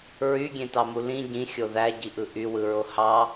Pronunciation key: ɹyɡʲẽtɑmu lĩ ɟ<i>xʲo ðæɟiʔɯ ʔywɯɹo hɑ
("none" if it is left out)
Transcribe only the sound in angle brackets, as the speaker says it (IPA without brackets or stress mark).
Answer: ĩ